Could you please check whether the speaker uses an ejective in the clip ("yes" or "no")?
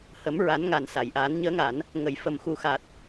no